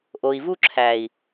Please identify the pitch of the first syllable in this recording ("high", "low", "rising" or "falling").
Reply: low